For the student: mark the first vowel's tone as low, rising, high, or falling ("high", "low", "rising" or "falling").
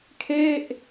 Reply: falling